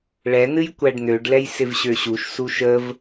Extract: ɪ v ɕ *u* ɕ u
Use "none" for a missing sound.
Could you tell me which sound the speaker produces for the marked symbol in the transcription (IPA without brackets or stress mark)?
ø